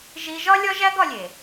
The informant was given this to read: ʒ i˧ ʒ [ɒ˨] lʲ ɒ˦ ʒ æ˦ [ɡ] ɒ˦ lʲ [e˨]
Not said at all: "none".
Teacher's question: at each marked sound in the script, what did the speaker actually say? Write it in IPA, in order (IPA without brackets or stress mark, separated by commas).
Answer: ɒ˦, ɡ, e˨